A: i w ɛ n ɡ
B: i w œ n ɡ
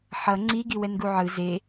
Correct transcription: A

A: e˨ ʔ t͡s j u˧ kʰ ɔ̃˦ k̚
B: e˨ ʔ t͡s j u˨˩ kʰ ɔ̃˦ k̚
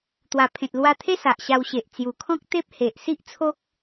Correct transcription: B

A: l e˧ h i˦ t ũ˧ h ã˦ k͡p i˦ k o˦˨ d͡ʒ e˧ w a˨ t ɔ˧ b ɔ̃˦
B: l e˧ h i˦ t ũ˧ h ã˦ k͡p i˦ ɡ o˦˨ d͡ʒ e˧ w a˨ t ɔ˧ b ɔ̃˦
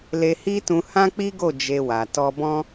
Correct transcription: B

